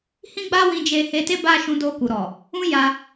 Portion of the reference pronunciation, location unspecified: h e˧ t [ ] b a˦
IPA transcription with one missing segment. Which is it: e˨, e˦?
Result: e˦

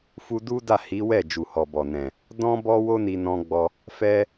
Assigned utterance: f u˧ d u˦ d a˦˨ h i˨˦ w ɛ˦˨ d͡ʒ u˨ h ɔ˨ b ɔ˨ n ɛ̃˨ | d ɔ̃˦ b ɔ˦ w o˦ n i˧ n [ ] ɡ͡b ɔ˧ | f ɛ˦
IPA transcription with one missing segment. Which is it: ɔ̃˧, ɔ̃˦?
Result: ɔ̃˧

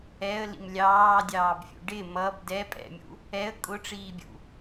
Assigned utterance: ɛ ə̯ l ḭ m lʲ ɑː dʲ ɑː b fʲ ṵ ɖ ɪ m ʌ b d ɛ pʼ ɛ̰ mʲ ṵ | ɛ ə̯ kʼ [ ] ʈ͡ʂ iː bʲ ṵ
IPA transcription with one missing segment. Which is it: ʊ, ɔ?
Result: ʊ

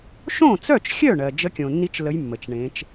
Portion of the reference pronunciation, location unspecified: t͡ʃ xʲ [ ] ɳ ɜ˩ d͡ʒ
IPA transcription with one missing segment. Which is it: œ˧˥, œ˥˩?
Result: œ˥˩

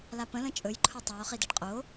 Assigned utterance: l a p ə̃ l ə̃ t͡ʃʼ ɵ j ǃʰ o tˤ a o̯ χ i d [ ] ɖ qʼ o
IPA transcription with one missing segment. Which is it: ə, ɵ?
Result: ə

